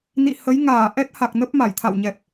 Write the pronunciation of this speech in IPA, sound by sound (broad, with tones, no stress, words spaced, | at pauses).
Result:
nḭ˧˨ hə˨˦jŋaː˧˩ ʔɛ˦˥t̚ha˨˩k̚ nə˦˥p̚ma˧˩jt̪ʰa̰˧˨wɲɛ˨˩p̚